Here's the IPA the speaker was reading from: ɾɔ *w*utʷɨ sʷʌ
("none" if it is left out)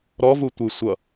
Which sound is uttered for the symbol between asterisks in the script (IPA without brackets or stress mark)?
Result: v